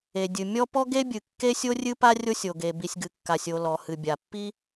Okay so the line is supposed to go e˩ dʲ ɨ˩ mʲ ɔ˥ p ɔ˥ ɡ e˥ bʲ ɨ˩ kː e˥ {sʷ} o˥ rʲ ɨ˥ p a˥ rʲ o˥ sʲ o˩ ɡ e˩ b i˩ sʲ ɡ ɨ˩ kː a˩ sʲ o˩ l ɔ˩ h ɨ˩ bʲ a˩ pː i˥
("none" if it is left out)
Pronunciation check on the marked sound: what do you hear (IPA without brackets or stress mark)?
sʲ